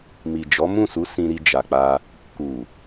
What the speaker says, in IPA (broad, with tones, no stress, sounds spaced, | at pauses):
m i˨ d͡ʒ ɔ˨˦ m ũ˦˨ s u˨˦ s ĩ˧ ɾ i˧ d͡ʒ a˨ k͡p a˧ | k u˨